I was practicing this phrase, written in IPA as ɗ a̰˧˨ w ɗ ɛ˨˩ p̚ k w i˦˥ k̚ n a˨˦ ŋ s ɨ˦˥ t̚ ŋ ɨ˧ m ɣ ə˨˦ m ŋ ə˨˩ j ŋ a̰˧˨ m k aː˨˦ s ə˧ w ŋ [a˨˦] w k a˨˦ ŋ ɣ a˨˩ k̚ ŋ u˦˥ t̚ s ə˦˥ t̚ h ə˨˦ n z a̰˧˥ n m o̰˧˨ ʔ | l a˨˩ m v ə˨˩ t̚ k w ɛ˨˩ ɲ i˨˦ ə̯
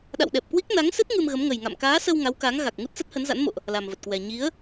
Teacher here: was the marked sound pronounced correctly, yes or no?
yes